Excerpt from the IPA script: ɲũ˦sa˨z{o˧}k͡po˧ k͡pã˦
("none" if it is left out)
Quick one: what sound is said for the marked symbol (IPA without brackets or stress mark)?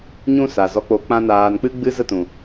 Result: ɔ˧